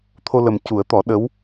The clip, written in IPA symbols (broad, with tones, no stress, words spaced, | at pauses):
t̪ʰo˧lə˨˩m cu˨˩˦ə̯t̪ɔ˨˩˦ ɗə˧˥w